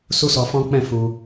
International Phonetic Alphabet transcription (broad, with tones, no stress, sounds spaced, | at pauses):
s u˦ s ɔ˧ f ɔ̃˦ k͡p ɛ̃˦˨ f u˧